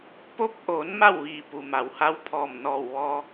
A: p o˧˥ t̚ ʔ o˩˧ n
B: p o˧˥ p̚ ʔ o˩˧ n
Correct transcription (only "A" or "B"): B